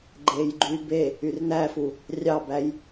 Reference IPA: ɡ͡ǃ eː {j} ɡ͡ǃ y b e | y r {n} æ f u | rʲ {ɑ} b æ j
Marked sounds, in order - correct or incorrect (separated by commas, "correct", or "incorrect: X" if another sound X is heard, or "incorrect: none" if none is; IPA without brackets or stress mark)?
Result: correct, correct, correct